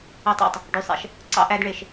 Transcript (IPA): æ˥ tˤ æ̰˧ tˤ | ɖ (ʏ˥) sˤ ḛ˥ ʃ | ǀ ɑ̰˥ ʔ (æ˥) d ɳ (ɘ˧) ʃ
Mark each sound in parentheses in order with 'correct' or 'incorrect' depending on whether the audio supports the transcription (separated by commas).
incorrect, correct, incorrect